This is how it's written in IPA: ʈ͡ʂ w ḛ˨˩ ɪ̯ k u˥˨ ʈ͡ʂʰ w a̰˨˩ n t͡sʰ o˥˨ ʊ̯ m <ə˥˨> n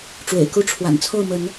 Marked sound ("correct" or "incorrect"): incorrect